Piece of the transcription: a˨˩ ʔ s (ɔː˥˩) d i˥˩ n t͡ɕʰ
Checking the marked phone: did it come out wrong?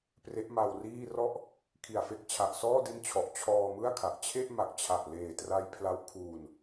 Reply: no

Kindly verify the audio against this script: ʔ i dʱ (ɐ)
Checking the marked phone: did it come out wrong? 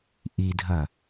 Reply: no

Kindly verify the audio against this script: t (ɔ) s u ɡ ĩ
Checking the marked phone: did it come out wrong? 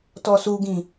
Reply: no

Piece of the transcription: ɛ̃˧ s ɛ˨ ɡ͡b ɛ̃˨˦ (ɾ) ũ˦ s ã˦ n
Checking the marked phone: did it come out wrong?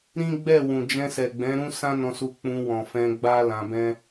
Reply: no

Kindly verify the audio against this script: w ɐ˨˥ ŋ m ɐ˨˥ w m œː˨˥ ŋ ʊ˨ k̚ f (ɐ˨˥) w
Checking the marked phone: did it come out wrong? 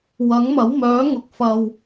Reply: yes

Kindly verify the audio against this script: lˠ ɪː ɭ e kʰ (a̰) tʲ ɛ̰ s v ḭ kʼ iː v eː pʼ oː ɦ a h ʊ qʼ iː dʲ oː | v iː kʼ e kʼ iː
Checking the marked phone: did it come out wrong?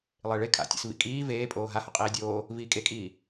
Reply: no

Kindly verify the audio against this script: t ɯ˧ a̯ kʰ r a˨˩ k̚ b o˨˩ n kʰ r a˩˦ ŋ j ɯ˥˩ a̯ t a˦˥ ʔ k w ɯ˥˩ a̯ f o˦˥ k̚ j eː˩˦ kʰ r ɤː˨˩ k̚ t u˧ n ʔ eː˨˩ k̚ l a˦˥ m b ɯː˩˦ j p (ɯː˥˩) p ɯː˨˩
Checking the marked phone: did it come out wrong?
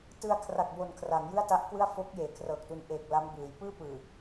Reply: no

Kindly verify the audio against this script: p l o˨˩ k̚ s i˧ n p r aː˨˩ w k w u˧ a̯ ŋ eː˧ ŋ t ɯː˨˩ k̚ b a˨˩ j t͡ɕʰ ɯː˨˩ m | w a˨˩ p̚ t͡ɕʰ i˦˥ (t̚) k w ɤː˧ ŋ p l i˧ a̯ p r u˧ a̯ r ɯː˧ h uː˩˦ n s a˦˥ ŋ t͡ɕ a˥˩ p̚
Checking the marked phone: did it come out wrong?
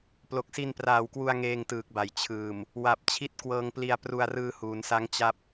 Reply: no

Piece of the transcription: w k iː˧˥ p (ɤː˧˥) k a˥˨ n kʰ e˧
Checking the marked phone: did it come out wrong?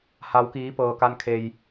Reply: yes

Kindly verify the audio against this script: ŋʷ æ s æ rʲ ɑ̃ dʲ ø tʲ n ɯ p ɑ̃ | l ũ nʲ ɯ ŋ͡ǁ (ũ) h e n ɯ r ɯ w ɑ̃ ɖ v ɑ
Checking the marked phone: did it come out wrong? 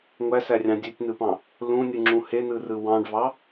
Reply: no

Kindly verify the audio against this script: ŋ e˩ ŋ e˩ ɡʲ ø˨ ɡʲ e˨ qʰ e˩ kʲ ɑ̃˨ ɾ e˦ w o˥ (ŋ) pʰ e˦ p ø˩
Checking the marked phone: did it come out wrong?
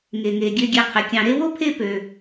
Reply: yes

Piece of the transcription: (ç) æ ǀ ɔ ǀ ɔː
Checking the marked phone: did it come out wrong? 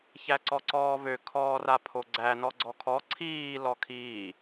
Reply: no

